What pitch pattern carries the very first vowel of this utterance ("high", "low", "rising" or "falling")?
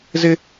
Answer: high